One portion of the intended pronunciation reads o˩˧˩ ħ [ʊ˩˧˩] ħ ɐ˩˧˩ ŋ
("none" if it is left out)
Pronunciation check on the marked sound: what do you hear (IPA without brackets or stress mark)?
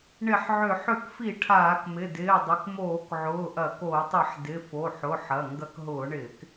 ʊ˩˧˩